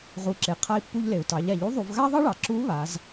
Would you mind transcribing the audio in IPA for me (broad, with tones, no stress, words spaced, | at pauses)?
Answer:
ʁu˩˧ǁe˩ qʰa˧i̯pːu˧ʎle˩u̯ tɑ˩˧ʎa˩ʎu˧˥ðˤu˩˧v ɣa˥ðˤɑ˥ɭɑ˩ǁu˧˥ βa˩˧z